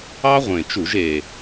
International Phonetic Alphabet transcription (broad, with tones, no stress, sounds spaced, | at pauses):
ɑ˥ ʁʷ ẽ˨˩ t͡ʃ u˧˩˧ ʒ e˨˩